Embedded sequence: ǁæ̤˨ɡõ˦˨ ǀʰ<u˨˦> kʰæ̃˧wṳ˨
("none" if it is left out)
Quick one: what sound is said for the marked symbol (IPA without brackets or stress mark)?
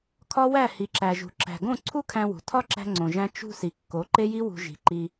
u˦